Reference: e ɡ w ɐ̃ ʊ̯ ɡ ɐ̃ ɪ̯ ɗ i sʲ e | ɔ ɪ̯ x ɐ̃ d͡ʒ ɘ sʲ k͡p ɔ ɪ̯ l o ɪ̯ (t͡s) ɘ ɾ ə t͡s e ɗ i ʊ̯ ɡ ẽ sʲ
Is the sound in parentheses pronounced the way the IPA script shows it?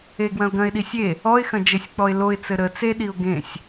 yes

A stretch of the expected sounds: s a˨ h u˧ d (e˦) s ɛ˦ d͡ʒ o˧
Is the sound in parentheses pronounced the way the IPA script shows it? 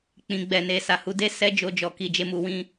yes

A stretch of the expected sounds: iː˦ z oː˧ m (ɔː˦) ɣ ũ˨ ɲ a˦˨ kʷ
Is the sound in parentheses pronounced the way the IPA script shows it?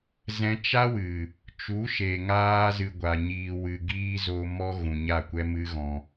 no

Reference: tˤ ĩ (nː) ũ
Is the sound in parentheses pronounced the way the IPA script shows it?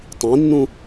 yes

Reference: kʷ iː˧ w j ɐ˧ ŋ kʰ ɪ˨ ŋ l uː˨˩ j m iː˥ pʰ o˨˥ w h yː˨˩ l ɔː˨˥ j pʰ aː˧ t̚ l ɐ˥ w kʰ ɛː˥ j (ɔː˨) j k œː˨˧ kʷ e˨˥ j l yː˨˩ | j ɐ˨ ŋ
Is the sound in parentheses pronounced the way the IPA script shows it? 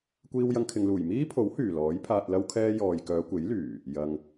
yes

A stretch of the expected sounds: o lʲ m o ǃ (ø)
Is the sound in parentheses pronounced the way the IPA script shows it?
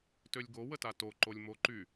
no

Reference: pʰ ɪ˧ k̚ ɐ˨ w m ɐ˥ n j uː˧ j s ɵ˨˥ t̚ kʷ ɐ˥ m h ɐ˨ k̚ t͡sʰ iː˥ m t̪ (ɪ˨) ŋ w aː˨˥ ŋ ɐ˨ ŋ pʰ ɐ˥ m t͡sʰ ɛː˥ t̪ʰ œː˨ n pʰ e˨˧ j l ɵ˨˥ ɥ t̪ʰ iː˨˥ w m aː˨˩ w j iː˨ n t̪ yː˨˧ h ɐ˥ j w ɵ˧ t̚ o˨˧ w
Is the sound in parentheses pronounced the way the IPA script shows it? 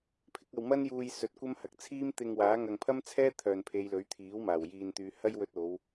no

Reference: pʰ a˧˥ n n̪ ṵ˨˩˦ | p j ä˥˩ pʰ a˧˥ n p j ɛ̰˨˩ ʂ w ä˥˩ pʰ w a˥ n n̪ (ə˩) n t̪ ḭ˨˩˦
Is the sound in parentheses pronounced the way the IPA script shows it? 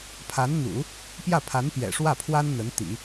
no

